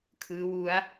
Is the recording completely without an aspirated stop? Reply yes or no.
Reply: no